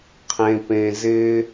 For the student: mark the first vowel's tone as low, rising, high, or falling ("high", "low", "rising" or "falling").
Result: low